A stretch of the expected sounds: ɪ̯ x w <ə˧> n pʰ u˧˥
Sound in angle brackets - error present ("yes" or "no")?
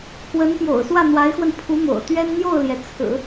no